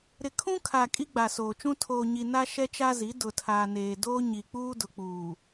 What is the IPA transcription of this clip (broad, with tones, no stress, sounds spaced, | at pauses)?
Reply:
ɾ ɪ˨ kʰ ũ˦ kʰ a˨ kʼ i˦ ɡ͡b a˨ s oː˨ t͡ʃ ũ˦ tʰ oː˨ ɲ i˨ n a˦ ʃ ɛ˦ t͡ʃ a˦ z i˨˦ d ʊ˨ tʰ aː˨ n eː˨ d oː˦ ɲ i˨ k͡p uː˦ d ʊ˨ k͡p uː˨